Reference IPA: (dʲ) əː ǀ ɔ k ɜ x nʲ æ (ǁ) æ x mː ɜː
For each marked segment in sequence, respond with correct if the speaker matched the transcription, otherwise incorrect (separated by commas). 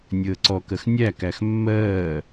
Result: incorrect, incorrect